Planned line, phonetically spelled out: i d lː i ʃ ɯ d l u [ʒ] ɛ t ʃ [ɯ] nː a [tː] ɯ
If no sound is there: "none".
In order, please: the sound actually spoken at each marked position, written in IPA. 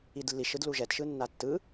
ʒ, ɯ, tː

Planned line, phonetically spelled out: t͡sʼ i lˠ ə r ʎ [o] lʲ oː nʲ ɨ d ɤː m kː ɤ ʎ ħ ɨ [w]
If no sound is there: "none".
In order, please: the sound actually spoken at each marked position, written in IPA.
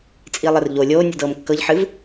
o, v

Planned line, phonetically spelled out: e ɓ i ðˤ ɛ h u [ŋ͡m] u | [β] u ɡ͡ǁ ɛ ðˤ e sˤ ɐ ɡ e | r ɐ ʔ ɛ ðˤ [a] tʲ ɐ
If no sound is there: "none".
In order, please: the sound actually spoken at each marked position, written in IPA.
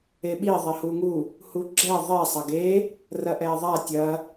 ŋ, h, a

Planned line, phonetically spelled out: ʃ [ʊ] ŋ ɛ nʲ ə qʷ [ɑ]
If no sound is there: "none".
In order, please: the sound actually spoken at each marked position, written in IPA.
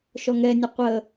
ɔ, ə

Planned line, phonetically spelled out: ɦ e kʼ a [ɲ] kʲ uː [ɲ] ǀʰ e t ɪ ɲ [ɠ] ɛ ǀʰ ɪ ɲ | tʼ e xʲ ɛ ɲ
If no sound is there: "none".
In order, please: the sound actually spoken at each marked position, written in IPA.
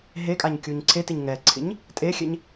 ɲ, ɲ, ŋ

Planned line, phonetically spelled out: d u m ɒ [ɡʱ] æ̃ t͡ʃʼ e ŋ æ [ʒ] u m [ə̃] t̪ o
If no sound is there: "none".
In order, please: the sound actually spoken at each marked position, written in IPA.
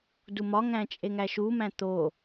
ŋ, ʃ, æ̃

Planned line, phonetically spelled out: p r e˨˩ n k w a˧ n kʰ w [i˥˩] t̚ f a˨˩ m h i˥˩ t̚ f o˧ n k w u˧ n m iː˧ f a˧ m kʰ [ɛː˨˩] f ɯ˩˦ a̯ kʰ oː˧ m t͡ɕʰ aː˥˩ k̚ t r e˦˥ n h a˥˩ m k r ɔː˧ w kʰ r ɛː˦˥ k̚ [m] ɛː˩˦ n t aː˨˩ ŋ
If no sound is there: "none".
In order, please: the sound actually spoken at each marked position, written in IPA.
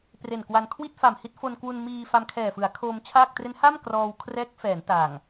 i˥˩, ɛː˨˩, f

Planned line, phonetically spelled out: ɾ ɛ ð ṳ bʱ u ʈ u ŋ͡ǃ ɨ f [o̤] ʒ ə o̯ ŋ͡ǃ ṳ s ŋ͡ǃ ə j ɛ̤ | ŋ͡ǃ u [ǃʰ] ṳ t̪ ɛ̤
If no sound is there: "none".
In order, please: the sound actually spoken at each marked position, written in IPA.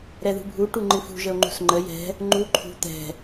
ṳ, ǃʰ

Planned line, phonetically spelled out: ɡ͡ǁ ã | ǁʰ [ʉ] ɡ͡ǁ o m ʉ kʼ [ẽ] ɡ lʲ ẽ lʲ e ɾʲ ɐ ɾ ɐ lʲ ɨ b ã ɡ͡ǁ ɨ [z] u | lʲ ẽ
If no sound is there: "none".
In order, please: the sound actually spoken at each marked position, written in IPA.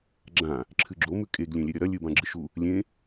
ɨ, e, ʃ

